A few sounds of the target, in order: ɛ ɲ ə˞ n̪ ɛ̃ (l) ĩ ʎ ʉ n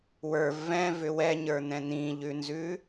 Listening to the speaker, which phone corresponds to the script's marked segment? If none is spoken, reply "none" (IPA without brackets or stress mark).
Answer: n̪